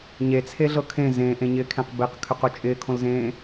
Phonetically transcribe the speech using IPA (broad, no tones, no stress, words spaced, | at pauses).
ɲet͡sʰeɮɤ kʰẽ zẽːʔẽɲɪːkʰẽq beqkʰøqo t͡ʃʼɪːkʰõlzẽː